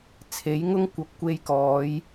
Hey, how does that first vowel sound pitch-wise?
rising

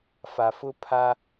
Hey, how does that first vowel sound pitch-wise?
low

